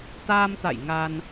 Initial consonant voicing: voiceless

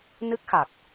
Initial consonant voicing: voiced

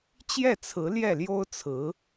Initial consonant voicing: voiceless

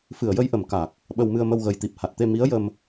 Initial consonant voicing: voiceless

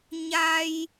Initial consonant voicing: voiced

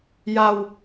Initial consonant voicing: voiced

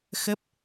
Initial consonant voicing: voiceless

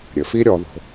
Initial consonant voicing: voiced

